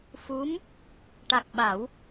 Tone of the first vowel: rising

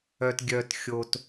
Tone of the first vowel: low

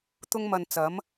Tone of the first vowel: high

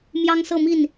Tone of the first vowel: high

